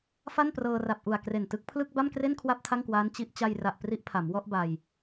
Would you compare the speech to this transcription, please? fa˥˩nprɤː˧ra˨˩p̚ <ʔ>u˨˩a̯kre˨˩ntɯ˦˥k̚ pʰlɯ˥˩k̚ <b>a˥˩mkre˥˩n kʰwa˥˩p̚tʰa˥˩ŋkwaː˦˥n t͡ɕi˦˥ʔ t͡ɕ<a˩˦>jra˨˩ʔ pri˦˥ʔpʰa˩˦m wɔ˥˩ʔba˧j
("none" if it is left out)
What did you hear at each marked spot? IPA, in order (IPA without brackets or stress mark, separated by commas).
ʔ, b, a˧